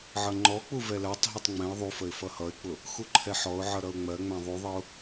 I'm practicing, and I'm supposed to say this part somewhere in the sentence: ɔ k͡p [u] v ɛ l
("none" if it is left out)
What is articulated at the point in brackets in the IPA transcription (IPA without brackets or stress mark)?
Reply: u